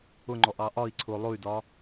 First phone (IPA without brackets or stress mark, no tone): ʊ